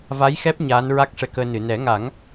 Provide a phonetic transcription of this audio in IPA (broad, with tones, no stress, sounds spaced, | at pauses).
v a˧˥ j x ɛ˦˥ p̚ ɲ aː˧˥ n ɹ a˦˥ k̚ ʂ ɛ˧ k əː˧ n ɨ˨˩˨ n ɛ˨˩˦ ŋ a˨˩˦ ŋ